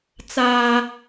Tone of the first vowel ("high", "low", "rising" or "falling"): high